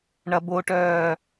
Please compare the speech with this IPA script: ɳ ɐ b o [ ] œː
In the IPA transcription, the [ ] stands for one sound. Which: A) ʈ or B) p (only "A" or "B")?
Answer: A